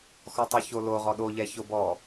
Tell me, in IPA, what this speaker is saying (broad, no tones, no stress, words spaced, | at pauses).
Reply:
xɔtˤuçolo ʁɔɗo ʎɛçobɔ